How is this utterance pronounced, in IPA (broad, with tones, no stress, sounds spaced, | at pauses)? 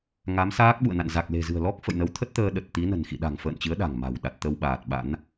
ŋ a˨˦ m s aː˦˥ k̚ ɓ ṵ˧˨ ə̯ n a̰˧˨ n z a˨˩ k̚ l e̤˨˩ z ɨ̤˨˩ ə̯ l ɔ˦˥ k̚ f ə̰˧˨ j n ə˨˦ w t̪ʰ ə˦˥ t̚ t̪ əː˧ ɗ ə˨˩ t̚ t̪ i˨˦ n ə̤˨˩ n x ḭ˧˨ ɗ a̤˨˩ ŋ f ə̰ː˧˨ n t͡ɕ ɨ˨˦ ə̯ ɗ a̤˨˩ ŋ m a̤˨˩ w ɗ a˨˩ t̚ t̪ ə˧ w ɓ aː˨˩ t̚ ɓ a̰˧˥ n